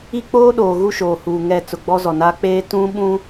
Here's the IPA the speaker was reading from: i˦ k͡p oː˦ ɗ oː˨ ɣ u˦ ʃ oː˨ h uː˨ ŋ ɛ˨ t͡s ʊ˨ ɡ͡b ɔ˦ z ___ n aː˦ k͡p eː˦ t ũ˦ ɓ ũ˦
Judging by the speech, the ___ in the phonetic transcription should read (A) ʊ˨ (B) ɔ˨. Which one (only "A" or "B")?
B